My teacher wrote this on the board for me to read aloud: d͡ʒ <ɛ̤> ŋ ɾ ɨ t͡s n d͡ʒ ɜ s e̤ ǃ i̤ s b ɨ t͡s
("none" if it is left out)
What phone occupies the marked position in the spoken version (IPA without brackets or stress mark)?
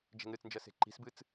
ɛ̤